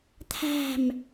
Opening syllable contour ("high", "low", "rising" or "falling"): falling